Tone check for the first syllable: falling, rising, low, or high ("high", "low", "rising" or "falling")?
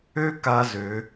high